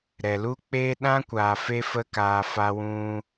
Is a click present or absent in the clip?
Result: absent